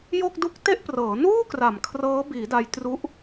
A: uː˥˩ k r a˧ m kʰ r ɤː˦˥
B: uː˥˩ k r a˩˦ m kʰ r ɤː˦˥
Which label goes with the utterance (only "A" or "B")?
B